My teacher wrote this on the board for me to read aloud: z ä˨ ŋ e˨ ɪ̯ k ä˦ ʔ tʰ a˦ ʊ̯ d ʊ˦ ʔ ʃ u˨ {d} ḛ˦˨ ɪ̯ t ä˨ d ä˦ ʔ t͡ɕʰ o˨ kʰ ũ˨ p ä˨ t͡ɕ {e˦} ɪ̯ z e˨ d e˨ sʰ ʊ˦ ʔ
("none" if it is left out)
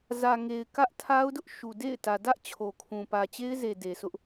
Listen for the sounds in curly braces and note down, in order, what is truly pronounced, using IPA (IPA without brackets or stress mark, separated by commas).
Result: d, e˦